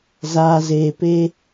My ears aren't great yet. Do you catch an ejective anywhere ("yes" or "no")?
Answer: no